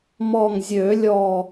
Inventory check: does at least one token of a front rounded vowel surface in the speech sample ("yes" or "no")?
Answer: yes